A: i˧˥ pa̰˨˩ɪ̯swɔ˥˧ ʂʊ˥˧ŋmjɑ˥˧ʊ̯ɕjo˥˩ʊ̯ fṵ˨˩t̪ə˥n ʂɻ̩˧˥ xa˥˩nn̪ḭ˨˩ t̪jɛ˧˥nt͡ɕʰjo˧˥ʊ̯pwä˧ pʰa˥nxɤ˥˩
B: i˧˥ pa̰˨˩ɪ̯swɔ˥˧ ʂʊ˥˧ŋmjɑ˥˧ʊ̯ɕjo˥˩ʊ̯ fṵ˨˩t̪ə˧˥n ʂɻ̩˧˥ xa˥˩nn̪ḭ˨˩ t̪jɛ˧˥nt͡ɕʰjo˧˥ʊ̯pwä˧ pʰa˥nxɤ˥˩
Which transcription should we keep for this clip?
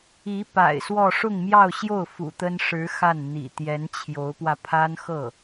A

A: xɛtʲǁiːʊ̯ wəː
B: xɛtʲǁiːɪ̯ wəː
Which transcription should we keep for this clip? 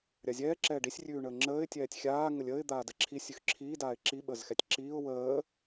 A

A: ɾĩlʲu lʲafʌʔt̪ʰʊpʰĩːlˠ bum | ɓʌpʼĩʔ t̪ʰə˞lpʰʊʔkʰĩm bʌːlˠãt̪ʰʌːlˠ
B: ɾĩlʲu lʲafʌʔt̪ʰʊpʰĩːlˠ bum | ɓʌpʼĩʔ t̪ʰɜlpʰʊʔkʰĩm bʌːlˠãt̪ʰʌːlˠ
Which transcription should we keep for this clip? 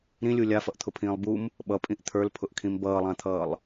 A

